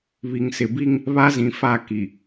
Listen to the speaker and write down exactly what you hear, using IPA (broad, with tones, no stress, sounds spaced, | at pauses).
β i˨ ŋ s ɪ˨ b i˦ ŋ | β a˦ z ĩ˨ f a˦˨ k i˨